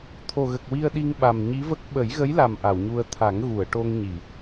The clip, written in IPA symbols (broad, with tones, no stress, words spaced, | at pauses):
t̪ʰo˨˩ɣə˨˩k̚ wi˧ə̯ɗi˧ŋɓa˨˩m ɲi˧˥və˦˥k̚ ɓə˨˩˦jɣə˧˥jla˨˩m ʔa˨˩˨wɲu˧ə̯ t̪ʰa˨˩˦ŋɣu˨˩˨ə̯ʈo˧ŋɲi˨˩˨